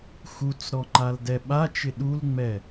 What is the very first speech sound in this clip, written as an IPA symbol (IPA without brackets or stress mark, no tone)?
x